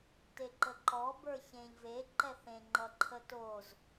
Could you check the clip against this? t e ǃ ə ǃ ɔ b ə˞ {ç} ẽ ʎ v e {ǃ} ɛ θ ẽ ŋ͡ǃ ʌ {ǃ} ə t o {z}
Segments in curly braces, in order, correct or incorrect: correct, correct, incorrect: ǃʰ, correct

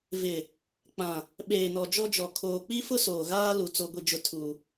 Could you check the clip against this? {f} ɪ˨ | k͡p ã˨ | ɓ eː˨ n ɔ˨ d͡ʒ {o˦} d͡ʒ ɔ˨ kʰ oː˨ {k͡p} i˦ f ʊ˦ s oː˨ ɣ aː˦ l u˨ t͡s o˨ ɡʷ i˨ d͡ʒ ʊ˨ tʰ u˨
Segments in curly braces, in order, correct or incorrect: incorrect: v, incorrect: ɔ˦, correct

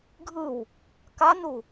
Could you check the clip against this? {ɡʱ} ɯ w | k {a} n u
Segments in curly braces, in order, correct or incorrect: correct, correct

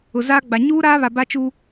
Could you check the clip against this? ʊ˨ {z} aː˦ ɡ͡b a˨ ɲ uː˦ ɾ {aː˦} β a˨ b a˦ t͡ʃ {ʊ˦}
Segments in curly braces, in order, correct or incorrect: correct, correct, incorrect: u˦

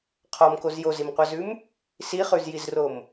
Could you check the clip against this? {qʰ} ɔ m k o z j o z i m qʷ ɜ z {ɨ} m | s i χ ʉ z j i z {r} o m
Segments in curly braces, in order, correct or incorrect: correct, incorrect: ʉ, correct

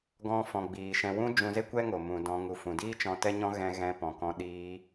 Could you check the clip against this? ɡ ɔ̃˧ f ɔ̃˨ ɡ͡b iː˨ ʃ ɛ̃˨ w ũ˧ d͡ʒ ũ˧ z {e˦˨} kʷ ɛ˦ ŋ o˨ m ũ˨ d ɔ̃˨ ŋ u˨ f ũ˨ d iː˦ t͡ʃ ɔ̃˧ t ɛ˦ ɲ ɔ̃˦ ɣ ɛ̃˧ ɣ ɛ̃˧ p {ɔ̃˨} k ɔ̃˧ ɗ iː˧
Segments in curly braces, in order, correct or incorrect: incorrect: e˦, correct

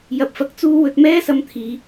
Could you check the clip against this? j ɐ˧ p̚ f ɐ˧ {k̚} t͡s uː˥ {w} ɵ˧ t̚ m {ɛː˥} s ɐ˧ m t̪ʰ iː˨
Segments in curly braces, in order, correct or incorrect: correct, correct, correct

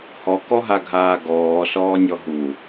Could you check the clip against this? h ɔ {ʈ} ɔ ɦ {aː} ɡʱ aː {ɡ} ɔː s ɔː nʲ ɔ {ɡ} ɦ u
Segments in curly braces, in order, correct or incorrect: incorrect: k, incorrect: a, correct, incorrect: none

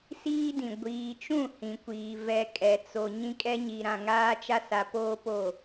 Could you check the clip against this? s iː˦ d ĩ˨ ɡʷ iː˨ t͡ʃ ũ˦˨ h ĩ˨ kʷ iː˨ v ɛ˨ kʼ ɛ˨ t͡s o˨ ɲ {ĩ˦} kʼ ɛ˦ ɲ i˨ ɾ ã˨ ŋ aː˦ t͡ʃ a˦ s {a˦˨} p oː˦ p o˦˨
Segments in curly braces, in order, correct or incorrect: correct, incorrect: a˨

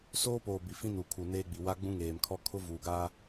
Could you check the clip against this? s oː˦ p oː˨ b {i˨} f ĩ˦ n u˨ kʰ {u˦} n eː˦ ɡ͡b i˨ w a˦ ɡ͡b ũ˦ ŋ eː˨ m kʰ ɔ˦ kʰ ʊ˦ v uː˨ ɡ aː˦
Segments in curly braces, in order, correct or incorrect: correct, incorrect: u˨

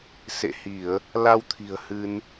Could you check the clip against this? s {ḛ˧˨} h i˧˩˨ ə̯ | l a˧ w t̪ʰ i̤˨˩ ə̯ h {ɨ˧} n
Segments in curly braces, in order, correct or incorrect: correct, correct

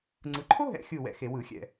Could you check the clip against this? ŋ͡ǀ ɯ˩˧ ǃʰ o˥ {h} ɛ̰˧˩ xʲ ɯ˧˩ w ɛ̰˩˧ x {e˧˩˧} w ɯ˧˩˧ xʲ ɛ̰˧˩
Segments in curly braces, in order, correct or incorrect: incorrect: ɦ, correct

